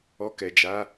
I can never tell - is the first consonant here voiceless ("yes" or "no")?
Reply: yes